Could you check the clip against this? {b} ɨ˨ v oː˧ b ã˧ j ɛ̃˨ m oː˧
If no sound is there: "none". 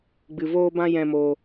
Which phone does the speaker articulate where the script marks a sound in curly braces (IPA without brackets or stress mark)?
ɡ͡b